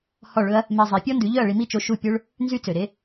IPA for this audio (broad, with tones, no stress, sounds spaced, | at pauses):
h ɔ˥˩ ɭ ɵ˥ ɐ̯ | m e˧ zˤ e˩˥ pʲ ɔ˥ n d ʉ˩˥ ʎ œ˥˩ ɐ̯ ɭ i˧ m i˥˩ t͡ʃ o˧ ʃ u˥˩ pʲ ɵ˥ ɭ | n z y˥ t͡s ø˩ ɾ e˥